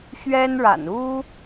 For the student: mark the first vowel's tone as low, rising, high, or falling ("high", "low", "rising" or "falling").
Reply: high